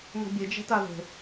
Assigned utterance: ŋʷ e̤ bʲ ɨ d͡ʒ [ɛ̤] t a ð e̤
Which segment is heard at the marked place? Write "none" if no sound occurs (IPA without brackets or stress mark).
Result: ɛ̤